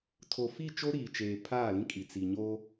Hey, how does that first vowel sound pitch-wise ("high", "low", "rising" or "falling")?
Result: low